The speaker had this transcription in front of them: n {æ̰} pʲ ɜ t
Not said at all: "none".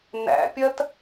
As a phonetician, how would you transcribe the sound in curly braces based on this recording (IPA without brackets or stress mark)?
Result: æ̰